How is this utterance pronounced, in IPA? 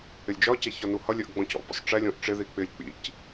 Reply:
ɪ lʲ d͡ʒ ɒ c æ ç ɒ n u h ʌ lʲ ɜ ʔ ɡ͡b ɔ̃ c ɔ̰ b ɔ̰ sˤ ʈ͡ʂ ɛ lʲ ɔ̃ ʔ ʈ͡ʂ ɪ ð i k͡p ɪ lʲ k͡p ḭ c

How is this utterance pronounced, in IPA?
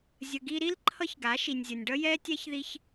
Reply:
zʲ ə˨ ɡ i˧ ɾ i˦ l ǃʰ ʌ˦ ç ɡ a˨˦ ʃ i˨ nʲ zʲ ʌ˨ nʲ ɖ ʌ˦ j ɛ˦ tʲ ɛ˦ ç ð i˧ ç

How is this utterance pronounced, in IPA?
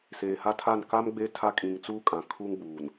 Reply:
s eː˨ h a˦ tʰ a˦˨ n k a˦ m ɡ͡b e˦ tʰ a˦ kʼ ĩ˨ ŋ t͡s uː˦ kʼ ã˨ kʰ uː˦ ŋ ɡ͡b uː˨ n

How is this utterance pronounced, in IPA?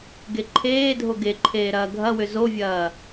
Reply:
ɡ e ǃʰ eː dʱ o ɡ e ǃʰ eː ɾ ɐː ɡʱ ɐ w ʏ z o vʲ ɐː

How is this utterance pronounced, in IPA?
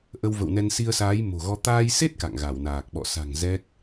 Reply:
ʔ ə˧ w v ə̰˧˨ w n ɛ˧ n s i˧ ə̯ s aː˨˦ j m o̤˨˩ ɣ ɔ˧ t̪ aː˧ j s e˦˥ t̚ k a̰˧˨ ŋ ɣ a˧˩ w n aː˨˩ k̚ ɓ ɔ̰˧˨ s a̤˨˩ ŋ z ɛ˦˥ k̚

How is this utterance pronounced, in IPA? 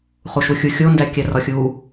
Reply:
χ u ʃ u xʲ u xʲ o n d æ kʲ æ r ɒ xʲ u

